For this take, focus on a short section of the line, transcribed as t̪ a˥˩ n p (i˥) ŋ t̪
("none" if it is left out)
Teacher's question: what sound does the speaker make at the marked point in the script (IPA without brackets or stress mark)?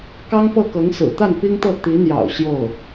i˥